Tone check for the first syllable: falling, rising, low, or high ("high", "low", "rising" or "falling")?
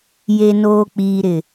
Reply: low